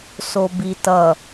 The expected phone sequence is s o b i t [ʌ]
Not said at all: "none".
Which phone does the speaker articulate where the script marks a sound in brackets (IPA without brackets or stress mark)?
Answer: ʌ